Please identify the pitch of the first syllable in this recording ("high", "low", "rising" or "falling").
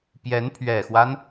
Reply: rising